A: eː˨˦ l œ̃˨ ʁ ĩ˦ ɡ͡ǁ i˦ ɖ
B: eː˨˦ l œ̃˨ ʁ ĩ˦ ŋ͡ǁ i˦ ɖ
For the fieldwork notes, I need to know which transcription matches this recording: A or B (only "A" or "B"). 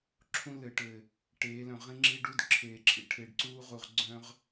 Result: B